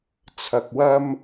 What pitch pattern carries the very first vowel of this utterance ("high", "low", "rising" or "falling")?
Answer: low